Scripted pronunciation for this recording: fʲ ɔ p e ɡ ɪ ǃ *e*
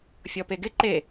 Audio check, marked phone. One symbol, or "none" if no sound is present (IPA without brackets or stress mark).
e